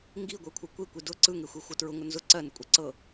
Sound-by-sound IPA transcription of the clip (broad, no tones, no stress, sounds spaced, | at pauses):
ŋ ɡ i ɡʷ ɜ kʷʰ ɯ kʷ i kʷ i d ʊ ǀ ɯ ŋ e xʷ e xʷ ɤ t ɹ ʊ ŋ ʊ n z ʊ ǀ ɜ n ʊ kʷʼ ɤ ǀ ɤ